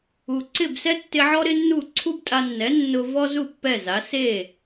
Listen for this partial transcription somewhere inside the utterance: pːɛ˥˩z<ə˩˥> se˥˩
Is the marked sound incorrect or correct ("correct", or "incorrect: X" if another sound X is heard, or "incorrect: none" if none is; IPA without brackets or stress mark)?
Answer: incorrect: a˩˥